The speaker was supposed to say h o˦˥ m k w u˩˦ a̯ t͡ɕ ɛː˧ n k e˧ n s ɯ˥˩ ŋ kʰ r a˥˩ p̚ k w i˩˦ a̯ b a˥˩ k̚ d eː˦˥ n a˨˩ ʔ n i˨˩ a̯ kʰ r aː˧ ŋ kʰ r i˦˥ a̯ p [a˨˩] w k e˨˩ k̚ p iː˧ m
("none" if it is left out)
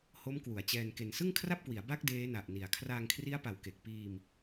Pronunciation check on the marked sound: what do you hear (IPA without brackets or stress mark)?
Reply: a˩˦